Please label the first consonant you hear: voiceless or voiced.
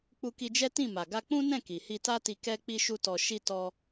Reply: voiceless